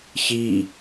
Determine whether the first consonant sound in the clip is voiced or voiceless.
voiceless